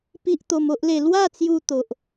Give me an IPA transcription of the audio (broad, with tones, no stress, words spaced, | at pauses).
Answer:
pi˦ʔt̪o˧mo˦ʔle˧ lwa˥˧t͡sju˧ t̪o˨ʔ